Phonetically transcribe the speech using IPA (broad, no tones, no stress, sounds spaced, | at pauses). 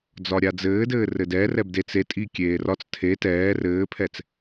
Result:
d͡z ɒ ɾʲ a d͡z ɘː d ɘː r ɘ d ɛ r ɛ b d e t͡s e tʼ i kʲ eː r ɒ t͡s tʰ e t ɛː r ɘː pʰ ɛ t͡s